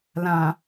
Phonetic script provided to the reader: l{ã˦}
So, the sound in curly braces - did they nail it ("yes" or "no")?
no